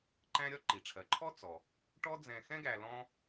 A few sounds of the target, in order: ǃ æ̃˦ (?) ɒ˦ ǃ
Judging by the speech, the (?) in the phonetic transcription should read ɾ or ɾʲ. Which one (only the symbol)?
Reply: ɾʲ